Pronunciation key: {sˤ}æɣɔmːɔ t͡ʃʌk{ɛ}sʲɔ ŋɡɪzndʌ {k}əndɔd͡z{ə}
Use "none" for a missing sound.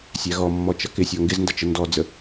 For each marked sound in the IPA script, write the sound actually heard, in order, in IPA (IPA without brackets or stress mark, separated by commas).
sʲ, ɪ, t͡ʃ, ə